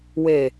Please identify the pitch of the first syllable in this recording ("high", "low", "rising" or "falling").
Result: low